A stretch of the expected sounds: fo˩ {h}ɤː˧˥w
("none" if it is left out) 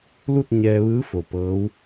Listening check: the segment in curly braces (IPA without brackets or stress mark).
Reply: p